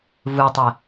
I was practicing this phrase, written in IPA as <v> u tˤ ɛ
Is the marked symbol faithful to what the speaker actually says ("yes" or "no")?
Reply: yes